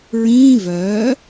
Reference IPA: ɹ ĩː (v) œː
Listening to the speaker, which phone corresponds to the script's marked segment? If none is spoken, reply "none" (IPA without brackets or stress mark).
v